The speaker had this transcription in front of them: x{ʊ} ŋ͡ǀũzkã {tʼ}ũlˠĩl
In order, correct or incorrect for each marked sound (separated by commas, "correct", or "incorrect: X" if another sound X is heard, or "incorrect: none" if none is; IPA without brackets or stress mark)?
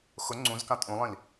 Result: correct, correct